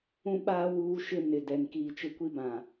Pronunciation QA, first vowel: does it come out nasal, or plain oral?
nasal